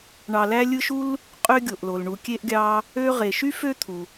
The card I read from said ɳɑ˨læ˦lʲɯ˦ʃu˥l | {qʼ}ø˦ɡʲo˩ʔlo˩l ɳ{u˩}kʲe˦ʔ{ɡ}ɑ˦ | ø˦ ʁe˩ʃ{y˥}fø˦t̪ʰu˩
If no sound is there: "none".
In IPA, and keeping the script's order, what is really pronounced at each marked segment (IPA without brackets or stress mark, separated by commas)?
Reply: qʼ, u˨, ɡʲ, y˥